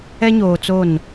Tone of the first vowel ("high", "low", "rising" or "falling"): high